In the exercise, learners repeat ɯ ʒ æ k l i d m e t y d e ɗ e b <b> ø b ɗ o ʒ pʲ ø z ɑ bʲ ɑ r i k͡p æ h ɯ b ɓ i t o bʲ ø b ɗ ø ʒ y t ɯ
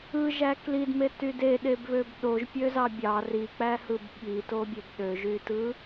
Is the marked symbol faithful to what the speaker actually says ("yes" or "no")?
no